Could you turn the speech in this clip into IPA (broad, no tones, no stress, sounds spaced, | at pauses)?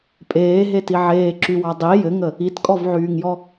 pʼ eː ɦ e t i ʕ eː ǁ y w ɑ dˤ i j ɘ ŋ ə | i t kʼ ɔ v ʕ yː ŋ j ɔ